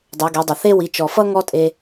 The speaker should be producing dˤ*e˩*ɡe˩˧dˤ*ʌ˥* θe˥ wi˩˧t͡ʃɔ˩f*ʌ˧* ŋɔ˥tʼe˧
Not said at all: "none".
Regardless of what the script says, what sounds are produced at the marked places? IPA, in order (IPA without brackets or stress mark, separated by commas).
e˩˧, ʌ˩, ʌ˥